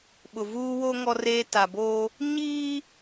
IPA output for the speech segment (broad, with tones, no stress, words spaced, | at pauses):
ɓʊ˨ vuː˦wo˦ ŋɔ˦reː˦ta˨boː˦ | ɲiː˦